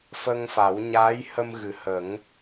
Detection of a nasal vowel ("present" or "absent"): absent